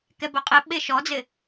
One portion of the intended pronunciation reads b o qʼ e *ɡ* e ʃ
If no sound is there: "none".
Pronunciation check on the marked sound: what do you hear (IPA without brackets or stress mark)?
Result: ɓ